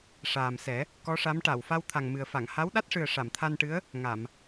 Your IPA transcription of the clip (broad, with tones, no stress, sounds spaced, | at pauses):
ʂ aː˨˩ m s ɛ˨˩˦ | k ɔ˧˥ ʂ a˧˥ m ʈ a˨˩˨ w f a˧ w t̪ʰ a˨˩ ŋ m ɨ˨˩ ə̯ f a˨˩˨ ŋ h a˧˥ w ɗ a˦˥ t̚ ʂ ɨ˨˩ ə̯ ʂ a˨˩˨ m t̪ʰ a˧ n ʈ ɨ˧˥ ə̯ | ŋ a˨˩˨ m